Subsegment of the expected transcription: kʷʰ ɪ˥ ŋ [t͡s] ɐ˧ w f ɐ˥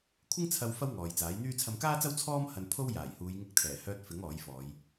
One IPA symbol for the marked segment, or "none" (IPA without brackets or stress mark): t͡sʰ